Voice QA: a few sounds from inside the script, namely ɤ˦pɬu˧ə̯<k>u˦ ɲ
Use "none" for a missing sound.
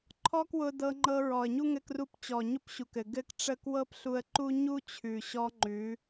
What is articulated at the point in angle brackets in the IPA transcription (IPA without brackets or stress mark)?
ǃ